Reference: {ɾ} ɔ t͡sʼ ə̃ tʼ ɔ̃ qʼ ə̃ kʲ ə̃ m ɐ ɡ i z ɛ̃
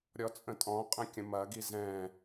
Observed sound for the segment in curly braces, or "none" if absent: ɾʲ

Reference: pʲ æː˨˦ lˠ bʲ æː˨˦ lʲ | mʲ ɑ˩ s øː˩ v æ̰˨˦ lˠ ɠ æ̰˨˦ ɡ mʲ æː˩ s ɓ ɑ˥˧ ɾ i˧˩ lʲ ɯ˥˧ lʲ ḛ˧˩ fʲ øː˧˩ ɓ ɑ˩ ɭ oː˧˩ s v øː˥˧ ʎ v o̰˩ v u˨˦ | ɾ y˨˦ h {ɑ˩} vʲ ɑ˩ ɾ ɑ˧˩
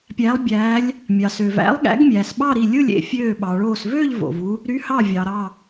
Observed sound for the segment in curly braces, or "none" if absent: ɑ˧˩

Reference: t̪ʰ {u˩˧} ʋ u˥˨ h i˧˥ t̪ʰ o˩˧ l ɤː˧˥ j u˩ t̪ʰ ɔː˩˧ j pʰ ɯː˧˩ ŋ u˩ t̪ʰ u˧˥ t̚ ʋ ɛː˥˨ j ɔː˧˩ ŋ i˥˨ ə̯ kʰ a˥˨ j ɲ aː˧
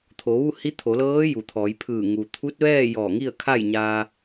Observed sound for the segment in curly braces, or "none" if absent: o˩˧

